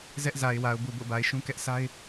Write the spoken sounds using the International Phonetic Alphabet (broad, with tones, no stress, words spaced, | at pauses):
zɛ˦ʔza˨ɪ̯wa˨ʊ̯ bu˨bo̰˦˨ba˨ɪ̯ ʃũ˦kɛ˦ʔ sʰa˦ɪ̯